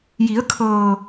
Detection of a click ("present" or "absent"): absent